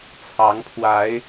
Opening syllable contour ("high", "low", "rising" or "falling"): rising